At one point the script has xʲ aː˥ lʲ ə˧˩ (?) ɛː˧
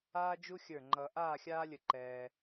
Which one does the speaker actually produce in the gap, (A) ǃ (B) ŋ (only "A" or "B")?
A